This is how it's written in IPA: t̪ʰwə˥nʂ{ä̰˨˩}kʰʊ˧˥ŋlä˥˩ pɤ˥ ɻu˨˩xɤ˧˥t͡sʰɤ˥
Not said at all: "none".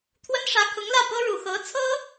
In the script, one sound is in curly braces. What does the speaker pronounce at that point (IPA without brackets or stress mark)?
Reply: ä˧˥